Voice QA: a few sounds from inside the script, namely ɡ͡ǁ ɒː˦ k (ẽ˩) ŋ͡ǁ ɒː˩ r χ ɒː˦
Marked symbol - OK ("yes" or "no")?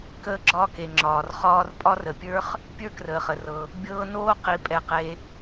no